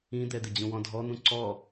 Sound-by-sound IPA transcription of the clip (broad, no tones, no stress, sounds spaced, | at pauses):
ĩ d̪ ɛ d̪ ɪ d͡ʑ ũ w ɔ̃ dʱ ɔ n̪ ũ ǀ ɔ